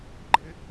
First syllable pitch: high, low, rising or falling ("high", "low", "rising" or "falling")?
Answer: rising